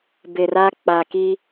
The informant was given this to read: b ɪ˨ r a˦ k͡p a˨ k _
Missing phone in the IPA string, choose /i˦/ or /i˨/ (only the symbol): i˦